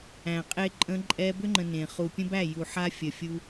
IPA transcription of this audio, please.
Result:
æ̃˨ qʼ e˦ ǃʼ ə̃˧ ǃʼ ɛ˧ b ʏ˦ ŋ͡ǃ ə̃˨ n ẽ˨ χ u˨ pʲ ə̃˦ b æ˦˨ j u˨ ħ a˦ fʲ ə˨ fʲ u˦

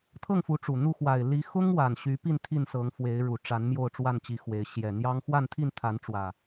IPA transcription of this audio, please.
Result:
t̪ʰ ɤ˥˨ ŋ f u˨˦ ʈ͡ʂ u˨˩ n̪ u˥˨ x w a˨˩ ɪ̯ l i˨˦ x ʊ˦ ŋ w a˨˩ n ɕ y˨˦ p i˥˨ n t̪ʰ i˥˨ n s ɤ˨˦ ŋ f w e˨˦ ɪ̯ ɻ u˨˩ ʈ͡ʂ a˨˦ n m j o˥˨ ʊ̯ ʈ͡ʂ w a˥˨ n t͡ɕ i˨˦ x w e˨˦ ɪ̯ ɕ j ɛ˨˩ n̪ j ɑ˦ ŋ x w a˥˨ n t̪ʰ i˥˨ n t̪ʰ a˨˦ n ʈ͡ʂ w ä˨˩

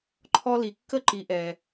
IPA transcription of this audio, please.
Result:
ǃʰ ɔ˦ l i˨ kː ə˦ ǃ i˨ ʔ ɛ˨

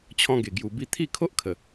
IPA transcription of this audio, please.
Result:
t͡ɕʰ ɔ̃˧ ɡ e˨˩ ɡ j u˨˩ b i˧ t̪ʰ i˥˧ kʰ o˦ ʔ kʰ ə˨˩

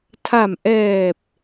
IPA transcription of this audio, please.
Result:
tʰ a˨˩ m ʔ ɛː˨˩ p̚

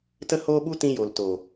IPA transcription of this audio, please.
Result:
t ə˦ h oː˦ ɓ u˦ t ĩ˧ j o˨ l t o˨

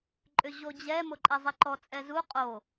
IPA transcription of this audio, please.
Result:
ǃʼ ʏ ʑ o d͡ʑ ɛ m o ǃʼ ɛ zˤ i ǃ ɔ t͡sʼ ɛ z u qʼ o

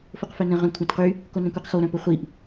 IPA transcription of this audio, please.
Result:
f o q f œ n ə̃ ʁ œ̃ kʷʰ œ̃ t q y | k o n œ̃ kʷ i q x o ɾ œ̃ p ə χʷ i ʔ

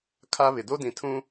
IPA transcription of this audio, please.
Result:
kʰ a˦ β ɪ˨ d o˦ d ĩ˨ tʰ ũ˦

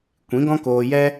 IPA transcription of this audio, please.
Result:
kʷ ĩ˨˦ ɡ ɔ̃˦ k oː˧ j ɛ˦

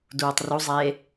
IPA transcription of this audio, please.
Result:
d uː tˤ r u zˤ eː

